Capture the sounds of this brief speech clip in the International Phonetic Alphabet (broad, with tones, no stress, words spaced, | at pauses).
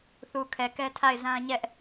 θu˨kʰɛ˨kɛ˦tʰa˦˨ɪ̯ zã˦ ɲɛ˦ʔ